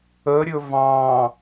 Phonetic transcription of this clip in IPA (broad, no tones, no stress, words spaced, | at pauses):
əɾʲɵ vɑ̃